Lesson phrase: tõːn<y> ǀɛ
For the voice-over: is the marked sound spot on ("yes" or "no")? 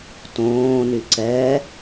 yes